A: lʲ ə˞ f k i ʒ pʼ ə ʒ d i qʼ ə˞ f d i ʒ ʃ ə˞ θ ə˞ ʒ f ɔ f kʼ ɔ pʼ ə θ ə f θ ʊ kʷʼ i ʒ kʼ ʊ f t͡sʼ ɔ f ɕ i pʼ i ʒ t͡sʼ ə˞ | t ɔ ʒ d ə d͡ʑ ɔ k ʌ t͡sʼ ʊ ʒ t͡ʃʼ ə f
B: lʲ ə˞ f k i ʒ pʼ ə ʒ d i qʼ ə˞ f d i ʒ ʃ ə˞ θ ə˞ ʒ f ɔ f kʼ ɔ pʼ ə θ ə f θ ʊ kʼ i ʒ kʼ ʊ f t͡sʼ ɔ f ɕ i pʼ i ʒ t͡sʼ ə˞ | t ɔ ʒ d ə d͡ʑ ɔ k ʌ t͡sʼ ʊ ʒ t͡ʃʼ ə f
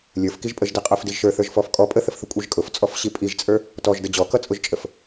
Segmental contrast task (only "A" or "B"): A